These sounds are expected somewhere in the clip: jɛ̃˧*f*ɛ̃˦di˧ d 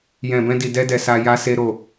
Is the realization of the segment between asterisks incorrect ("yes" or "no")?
yes